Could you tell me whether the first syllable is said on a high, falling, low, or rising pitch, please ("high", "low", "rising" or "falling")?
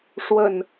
low